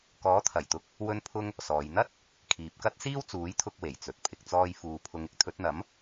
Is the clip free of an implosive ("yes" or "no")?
yes